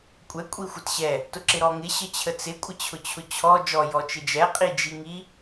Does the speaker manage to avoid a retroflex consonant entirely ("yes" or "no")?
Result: yes